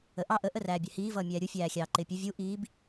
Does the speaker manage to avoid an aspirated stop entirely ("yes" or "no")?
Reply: yes